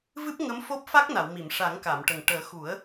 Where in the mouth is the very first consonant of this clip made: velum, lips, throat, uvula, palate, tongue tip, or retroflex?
lips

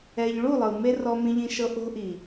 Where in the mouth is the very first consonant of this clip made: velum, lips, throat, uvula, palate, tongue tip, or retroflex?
palate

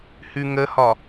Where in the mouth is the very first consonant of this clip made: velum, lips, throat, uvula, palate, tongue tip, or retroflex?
throat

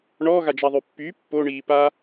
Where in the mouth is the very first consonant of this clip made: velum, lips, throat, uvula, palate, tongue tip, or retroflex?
retroflex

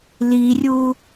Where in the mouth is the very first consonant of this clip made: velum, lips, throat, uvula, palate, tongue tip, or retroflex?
tongue tip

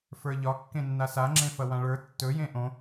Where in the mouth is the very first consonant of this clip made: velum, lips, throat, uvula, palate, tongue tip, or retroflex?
lips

